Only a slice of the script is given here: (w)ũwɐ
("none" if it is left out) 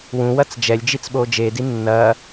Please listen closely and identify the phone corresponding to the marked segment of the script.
w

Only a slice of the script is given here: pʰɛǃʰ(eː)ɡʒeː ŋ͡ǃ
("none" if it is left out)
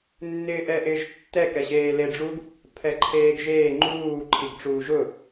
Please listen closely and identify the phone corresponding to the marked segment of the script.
eː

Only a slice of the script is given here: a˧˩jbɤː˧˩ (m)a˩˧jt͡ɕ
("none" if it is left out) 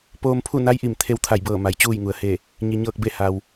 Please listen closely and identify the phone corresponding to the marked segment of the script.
m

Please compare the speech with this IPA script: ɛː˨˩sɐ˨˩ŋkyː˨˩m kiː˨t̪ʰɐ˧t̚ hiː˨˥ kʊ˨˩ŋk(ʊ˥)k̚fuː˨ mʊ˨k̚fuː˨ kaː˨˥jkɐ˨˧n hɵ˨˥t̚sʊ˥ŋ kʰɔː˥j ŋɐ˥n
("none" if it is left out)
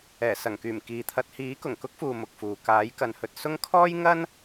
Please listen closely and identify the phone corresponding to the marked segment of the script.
ʊ˥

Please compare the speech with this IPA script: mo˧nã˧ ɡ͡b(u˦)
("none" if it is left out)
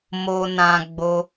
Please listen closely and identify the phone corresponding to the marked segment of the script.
o˦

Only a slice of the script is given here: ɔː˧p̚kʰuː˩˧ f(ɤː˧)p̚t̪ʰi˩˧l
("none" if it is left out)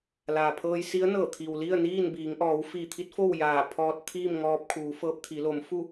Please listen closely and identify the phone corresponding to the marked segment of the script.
ɤː˧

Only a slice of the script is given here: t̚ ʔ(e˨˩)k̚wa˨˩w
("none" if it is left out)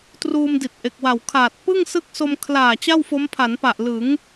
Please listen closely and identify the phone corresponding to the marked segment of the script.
e˨˩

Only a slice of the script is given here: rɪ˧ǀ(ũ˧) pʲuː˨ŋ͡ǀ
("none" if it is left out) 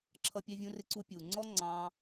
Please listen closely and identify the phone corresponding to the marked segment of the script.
u˧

